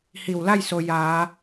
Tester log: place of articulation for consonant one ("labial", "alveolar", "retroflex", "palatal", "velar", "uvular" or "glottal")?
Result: glottal